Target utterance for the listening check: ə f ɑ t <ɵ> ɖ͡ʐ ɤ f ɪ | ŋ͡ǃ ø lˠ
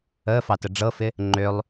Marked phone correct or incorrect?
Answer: incorrect